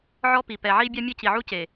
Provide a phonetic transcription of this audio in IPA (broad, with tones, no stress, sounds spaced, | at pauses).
ʕ ɔ˦ p i˨ p ɛ˨ ʕ i˦ bʲ a˦ mʲ e˦ c i˨ ʕ u˦ c e˨